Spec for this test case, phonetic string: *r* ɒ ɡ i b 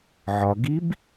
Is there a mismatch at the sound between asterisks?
yes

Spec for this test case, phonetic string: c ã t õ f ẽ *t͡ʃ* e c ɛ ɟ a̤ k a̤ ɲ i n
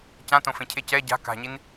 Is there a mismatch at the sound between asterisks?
yes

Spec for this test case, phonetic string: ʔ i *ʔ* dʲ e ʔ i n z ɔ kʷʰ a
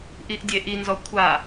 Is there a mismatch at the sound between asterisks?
no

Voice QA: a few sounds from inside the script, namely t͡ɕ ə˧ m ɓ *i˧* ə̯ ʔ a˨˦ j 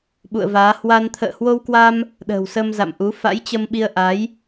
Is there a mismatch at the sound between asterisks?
no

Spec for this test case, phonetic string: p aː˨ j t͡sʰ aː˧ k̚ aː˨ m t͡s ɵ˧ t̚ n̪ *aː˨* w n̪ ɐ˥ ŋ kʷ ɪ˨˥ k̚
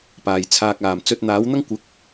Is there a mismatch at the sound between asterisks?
yes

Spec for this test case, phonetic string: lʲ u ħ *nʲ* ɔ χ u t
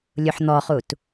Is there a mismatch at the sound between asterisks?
yes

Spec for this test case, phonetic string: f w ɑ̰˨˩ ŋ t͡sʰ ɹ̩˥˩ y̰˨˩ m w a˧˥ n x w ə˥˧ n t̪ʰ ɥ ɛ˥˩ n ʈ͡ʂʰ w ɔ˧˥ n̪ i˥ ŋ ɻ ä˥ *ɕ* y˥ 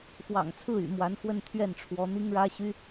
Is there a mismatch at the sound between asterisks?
no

